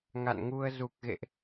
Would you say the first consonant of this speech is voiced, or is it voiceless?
voiced